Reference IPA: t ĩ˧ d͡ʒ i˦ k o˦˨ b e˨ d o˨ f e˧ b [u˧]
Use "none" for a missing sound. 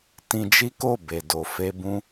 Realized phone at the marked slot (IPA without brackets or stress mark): ũ˧